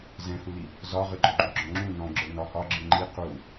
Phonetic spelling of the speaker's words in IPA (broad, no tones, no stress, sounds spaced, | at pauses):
z ɛ̃ h u l i | z ɒ ʁ ɨ ɡ͡ǃ ɔ ɡ͡ǃ u ɡ͡ǁ ɔ̃ ŋ͡ǁ ũ n ɔ̃ ɡ͡ǁ ə˞ n ɒ h ɒ ɡ͡ǁ ɨ ŋ͡ǃ i q u